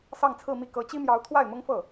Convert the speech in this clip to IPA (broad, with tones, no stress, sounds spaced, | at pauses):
s ɑ˥˧ ŋ t͡sʰ ɹ̩˥˧ m i˥˩ k ɤ˧˥ t͡ɕ i˥ m j ɑ˧˥ ʊ̯ t̪ʰ w a˥˩ ɪ̯ m ʊ˥ ŋ f ɤ˥˩